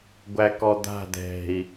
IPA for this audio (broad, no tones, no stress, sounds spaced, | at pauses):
ɡʷ æ k ɔ d̪ a̤ d̪ ɛ̤ i̯